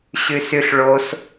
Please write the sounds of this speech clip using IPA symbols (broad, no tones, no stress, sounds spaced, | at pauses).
ɕ y s y ɬ ɭ o s